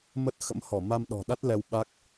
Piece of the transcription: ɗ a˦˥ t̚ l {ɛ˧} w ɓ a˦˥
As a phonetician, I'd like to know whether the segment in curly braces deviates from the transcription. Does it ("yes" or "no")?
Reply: no